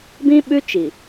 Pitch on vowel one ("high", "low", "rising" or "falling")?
high